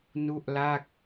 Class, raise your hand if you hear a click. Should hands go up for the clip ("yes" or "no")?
no